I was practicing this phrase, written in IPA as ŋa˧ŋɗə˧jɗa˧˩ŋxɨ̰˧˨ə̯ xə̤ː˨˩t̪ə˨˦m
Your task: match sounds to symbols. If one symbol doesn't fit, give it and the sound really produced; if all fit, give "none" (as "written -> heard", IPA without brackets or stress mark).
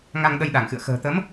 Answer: none